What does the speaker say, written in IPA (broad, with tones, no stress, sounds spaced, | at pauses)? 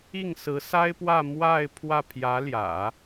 i˥˩ ŋ s ɹ̩˧˥ s a˥ ɪ̯ p w ä˥˧ m w a˥˧ ɪ̯ pʰ w ä˥˩ pʰ j ä˧˥ l j ä̰˨˩˦